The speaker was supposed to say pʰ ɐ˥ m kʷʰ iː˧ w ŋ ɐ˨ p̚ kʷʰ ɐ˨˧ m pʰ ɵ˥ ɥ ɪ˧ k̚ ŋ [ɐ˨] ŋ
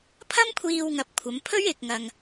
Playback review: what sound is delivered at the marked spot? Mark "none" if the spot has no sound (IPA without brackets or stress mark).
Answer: ɐ˧